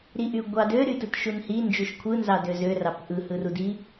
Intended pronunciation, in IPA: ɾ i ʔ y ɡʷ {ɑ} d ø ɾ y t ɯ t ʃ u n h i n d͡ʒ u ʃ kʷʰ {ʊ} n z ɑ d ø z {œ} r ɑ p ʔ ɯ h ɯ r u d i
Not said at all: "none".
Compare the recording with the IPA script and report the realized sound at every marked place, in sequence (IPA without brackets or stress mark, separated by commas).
ɑ, ɯ, ø